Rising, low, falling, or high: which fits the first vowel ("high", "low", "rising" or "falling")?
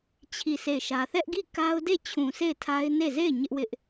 falling